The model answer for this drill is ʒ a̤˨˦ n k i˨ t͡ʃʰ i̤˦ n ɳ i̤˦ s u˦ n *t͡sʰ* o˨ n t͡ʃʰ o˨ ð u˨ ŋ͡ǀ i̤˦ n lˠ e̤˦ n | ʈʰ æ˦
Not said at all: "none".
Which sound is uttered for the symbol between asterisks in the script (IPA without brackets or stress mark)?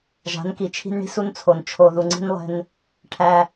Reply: t͡sʰ